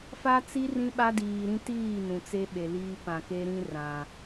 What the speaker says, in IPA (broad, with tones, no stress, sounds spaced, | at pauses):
f a˦ t͡s i˦ r ĩ˦ ɓ a˦ d iː˨ ɾ ĩ˦ t iː˦˨ n ũ˨ t͡s e˦ ɓ e˨ l iː˦ p ã˨ k e˦ ɾ ĩ˦ r ã˨